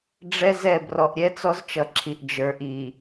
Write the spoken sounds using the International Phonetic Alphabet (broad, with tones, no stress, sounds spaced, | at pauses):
ɖ͡ʐ ɛ˦ z ɛ˦˨ b r ɔ˨ ʔ ɾʲ ɛ˦ t͡s ɔ˦ z t͡ʃ ʌ˨ ǁʰ i˨ ʔ d͡ʒ ə˞˨ ʔ i˨